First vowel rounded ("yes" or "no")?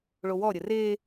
yes